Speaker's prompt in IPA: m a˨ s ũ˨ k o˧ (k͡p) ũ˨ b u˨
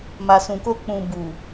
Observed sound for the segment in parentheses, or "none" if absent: k͡p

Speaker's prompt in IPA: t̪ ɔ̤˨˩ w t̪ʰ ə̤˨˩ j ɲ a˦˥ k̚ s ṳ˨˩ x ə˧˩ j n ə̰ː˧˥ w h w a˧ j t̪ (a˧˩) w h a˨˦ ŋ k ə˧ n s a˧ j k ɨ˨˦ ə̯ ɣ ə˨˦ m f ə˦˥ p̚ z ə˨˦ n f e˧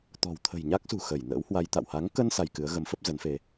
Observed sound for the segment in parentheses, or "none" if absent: a̰˧˨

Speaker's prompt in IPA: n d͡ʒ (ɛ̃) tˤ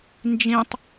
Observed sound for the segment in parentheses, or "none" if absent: ẽ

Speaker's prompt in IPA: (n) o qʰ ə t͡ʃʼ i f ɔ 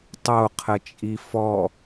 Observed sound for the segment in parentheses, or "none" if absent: tˤ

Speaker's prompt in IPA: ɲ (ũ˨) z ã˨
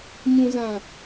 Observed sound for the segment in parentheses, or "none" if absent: ũ˨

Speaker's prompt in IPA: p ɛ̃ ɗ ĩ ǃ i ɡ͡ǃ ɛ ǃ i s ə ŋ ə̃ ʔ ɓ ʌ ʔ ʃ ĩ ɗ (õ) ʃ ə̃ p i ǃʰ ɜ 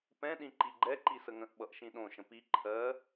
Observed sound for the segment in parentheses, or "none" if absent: õ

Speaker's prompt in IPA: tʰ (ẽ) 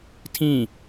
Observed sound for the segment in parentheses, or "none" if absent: ĩ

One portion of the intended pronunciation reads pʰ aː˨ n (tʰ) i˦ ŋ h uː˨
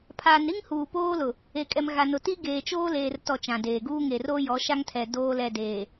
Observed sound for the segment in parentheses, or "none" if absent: ɾ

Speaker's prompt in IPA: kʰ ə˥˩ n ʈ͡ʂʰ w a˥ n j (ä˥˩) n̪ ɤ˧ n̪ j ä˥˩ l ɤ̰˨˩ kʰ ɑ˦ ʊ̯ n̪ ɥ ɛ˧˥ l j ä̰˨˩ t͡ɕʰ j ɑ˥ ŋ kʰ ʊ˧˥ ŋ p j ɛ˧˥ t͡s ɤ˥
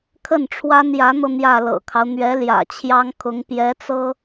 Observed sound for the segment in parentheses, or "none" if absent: ä˧˥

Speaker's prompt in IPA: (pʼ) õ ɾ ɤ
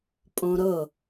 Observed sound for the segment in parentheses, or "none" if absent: pʼ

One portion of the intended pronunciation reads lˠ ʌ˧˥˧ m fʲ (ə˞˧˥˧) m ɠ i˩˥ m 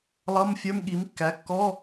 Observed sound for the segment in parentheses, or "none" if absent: ə˞˧˥˧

